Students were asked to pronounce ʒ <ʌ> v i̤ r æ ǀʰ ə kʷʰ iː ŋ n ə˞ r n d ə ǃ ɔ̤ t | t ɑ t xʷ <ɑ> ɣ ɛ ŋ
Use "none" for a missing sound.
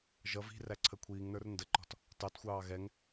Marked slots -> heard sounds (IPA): ʌ, ɑː

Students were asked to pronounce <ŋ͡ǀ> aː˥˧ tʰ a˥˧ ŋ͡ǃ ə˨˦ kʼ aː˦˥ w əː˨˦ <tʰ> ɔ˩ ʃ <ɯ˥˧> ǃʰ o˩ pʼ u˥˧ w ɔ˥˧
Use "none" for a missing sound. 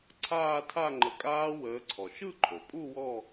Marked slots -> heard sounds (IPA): ǀʰ, ǀʰ, ɯ˥˧

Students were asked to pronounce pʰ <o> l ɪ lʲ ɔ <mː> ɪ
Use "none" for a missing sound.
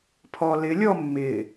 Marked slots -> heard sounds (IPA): ɔ, mː

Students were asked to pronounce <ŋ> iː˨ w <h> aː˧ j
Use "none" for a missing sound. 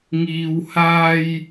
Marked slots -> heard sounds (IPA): ŋ, h

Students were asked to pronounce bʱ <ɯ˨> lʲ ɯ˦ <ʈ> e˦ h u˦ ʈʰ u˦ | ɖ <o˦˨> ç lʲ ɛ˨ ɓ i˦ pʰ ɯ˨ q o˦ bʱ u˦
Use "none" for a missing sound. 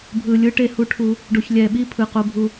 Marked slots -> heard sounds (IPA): ɯ˨, ʈ, o˨

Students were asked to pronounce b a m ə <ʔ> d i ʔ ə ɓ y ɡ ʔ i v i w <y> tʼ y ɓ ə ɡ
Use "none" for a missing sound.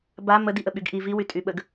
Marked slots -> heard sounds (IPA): none, y

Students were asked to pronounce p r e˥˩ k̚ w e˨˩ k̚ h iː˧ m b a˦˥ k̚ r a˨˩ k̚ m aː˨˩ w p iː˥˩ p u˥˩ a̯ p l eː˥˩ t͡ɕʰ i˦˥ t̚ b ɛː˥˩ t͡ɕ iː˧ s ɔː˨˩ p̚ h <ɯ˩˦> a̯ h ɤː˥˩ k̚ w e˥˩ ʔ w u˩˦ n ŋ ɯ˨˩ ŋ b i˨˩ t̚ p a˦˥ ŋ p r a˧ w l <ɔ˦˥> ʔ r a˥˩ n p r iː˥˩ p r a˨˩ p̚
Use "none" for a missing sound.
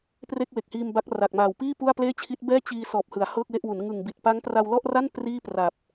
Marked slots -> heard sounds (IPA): ɯ˩˦, ɔ˥˩

